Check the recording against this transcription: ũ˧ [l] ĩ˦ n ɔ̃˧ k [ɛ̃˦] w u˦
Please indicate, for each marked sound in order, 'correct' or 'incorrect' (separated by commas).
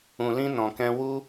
correct, correct